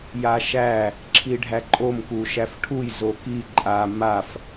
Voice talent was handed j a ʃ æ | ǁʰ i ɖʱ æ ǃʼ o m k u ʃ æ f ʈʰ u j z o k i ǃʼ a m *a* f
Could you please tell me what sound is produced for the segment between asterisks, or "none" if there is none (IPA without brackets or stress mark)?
a